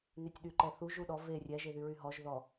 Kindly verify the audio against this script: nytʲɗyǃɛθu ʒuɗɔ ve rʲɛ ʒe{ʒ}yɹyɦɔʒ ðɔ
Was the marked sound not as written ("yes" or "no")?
yes